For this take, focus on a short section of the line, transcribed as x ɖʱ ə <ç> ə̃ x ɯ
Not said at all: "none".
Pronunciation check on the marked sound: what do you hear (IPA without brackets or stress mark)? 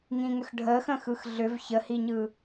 x